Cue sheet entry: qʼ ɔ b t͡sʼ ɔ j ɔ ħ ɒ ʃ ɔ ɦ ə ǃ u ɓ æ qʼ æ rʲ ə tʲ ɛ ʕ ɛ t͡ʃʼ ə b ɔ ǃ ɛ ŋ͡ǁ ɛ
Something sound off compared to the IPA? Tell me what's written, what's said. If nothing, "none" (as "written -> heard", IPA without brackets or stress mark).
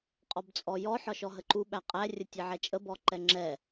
none